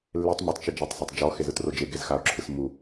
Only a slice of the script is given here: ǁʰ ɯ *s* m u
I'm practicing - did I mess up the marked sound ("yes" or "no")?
no